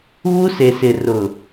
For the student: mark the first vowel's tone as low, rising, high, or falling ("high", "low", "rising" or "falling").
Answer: high